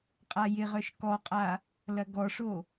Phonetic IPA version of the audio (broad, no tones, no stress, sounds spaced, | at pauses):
qʼ a j ɪ ʁ œ ʃ k ɔ qʼ a | l ɐ ɡ ɔ ʂ o